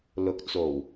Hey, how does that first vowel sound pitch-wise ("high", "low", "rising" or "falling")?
rising